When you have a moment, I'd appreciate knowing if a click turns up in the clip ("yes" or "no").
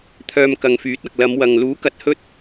no